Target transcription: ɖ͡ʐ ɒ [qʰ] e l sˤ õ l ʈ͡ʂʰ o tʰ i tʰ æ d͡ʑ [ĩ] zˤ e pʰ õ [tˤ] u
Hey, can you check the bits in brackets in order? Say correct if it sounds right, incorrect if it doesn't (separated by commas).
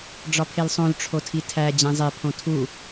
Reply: incorrect, incorrect, incorrect